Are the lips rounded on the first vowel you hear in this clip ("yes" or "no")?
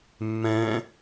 no